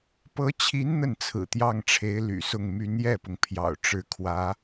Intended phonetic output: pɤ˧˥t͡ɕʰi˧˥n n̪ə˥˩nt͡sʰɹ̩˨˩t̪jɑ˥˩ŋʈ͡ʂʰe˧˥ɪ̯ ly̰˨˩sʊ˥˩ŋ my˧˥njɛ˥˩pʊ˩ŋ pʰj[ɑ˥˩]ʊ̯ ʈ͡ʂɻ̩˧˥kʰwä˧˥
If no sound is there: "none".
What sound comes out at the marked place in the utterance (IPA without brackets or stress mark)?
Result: ɑ̰˨˩